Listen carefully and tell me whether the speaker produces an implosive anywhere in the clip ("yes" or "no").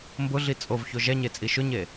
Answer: no